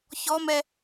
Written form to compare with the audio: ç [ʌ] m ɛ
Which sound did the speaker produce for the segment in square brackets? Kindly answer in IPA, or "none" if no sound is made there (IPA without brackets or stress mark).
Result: ɔ